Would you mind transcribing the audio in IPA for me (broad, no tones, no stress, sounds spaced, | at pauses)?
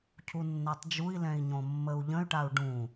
cʰ u nː a tˤ d͡ʒ u i̯ l ɛ̃ i̯ ɲ õ mː ə u̯ ʎ ə̃ y̯ ʈ a u̯ ɖ ũ